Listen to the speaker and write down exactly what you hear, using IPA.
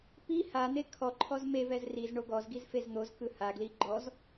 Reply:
p i h a n̪ e kʰ ɔ ǃʰ ɔ z m e v ɛ z r i z ɳ o ɡ ɔ z ɡ i z f e z n̪ o z k ɯ h a ɡ l i ɡ͡ǃ ɔ z

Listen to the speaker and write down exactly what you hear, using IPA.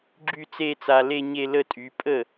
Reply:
ɡ͡ǁ y˥˧ t͡s e˥˧ t͡s a˧ l e˥˧ ɲ e˥˧ l ə˥˧ tʼ y˩˥ pʼ ə˥˩

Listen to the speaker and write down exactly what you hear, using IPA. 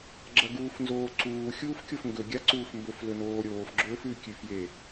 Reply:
ɡ͡ǁ ɐ ɡ uː f n z oː ǀ uː xʲ uː f kʲ o f ŋ ɡ ɵ ɡʲ a ǀ uː f m b ɵ f l ɵ n oː ɾʲ oː f ɡ͡ǁ ɵː f ʉ kʲ ʉ f j e

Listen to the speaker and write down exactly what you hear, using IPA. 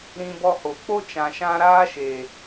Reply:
ɾ ĩ˧ b ɔ˧ h o˨ k͡p o˦ t͡ʃ ã˨ ʃ ã˧ ɾ aː˦ ʃ e˨

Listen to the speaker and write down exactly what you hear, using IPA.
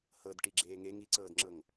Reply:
h ɤ d ʈ i ɡ͡ǁ eː ŋ e ŋ i ǀ ɤː d ŋ͡ǁ ɤ ŋ

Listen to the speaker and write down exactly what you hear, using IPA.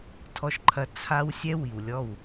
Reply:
tʰ ɔ˧ ʃ ǃʰ ɐ˧ t͡sʰ a˧ w sʲ ɛ˦ w i˨ w lʲ ɔ˦˨ w

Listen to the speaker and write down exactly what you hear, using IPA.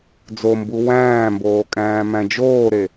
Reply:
d͡z o m b u w æ̃ː m b oː kʼ æ̃ː m æ̃ d͡ʒ oː ɾ e

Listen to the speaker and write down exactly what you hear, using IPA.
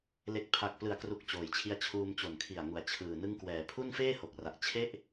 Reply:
l e˨˩ k̚ pʰ a˨˩ k̚ p l ɯ˩˦ a̯ k r u˨˩ k̚ t͡ɕ oː˩˦ j t͡ɕʰ i˧ a̯ t͡ɕʰ uː˧ m t͡ɕ o˨˩ n kʰ i˨˩ a̯ ŋ u˩˦ a̯ t͡ɕʰ ɯː˨˩ n ɯ˦˥ ŋ k w ɛː˨˩ pʰ u˥˩ n f eː˥˩ h o˨˩ k̚ r a˨˩ ʔ t͡ɕʰ e˥˩ ʔ

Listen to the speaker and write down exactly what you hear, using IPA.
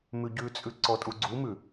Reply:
m ʉ ɟ ʉ t͡sʼ ʉ ǀ ɔ tʼ u ɡ͡ǀ u m ʉ

